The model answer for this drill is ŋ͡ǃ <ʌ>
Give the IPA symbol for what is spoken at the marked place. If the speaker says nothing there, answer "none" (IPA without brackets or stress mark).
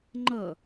ʌ